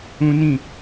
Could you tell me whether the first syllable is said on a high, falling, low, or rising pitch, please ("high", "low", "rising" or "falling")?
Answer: high